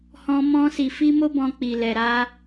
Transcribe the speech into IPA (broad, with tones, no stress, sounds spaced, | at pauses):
h ɔ̃˦ m ɔ̃˦ s i˧ f i˦ m o˦ b ɔ̃˧ k͡p i˨ l ɛ˨ ɾ a˧